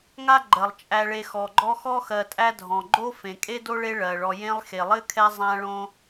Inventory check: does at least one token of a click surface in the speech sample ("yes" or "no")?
yes